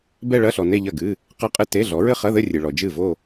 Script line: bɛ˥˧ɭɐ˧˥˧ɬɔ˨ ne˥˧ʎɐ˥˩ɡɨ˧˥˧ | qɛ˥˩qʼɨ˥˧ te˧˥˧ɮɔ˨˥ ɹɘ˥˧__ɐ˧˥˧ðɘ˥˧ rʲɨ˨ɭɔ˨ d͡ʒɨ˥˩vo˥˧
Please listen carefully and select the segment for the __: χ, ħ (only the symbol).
χ